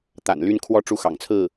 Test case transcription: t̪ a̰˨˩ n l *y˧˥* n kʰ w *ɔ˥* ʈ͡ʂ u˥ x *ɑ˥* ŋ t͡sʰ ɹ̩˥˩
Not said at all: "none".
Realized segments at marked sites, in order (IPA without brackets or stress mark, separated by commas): y˥, ɔ˥, ɑ̰˨˩